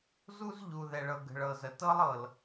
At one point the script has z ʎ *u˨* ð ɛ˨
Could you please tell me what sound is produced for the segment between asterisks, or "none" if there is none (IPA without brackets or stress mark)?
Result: u˨